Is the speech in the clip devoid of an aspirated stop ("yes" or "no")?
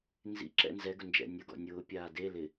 yes